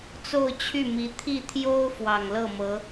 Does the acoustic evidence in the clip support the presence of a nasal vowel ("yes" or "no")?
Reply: no